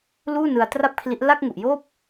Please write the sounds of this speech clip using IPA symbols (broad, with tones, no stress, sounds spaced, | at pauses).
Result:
l uː˥˩ n ɯ˧ a̯ t r a˥˩ p̚ kʰ l i˦˥ ʔ l a˥˩ k̚ ŋ u˨˩ ʔ j oː˥˩ p̚